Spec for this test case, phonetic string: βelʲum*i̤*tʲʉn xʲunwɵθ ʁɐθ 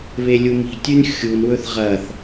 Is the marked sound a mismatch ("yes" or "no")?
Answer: no